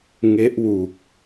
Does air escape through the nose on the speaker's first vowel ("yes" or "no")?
no